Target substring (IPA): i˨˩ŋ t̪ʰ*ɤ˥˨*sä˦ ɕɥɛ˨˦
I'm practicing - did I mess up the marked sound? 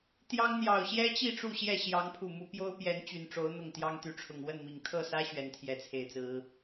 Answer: no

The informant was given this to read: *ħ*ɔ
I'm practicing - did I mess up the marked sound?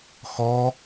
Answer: yes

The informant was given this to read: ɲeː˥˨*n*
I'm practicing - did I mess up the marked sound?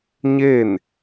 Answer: no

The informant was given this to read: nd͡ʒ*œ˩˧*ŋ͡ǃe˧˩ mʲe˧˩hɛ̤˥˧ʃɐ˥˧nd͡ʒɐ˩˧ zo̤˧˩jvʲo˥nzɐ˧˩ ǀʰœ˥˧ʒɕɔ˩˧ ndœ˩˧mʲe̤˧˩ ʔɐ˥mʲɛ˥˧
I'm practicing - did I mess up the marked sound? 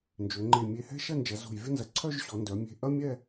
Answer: yes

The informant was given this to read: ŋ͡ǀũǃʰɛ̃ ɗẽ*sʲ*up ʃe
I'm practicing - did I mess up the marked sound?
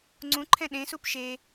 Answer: yes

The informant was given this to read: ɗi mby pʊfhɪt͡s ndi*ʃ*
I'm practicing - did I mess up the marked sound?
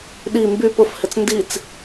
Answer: yes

